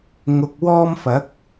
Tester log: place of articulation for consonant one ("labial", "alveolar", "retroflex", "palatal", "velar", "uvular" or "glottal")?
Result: velar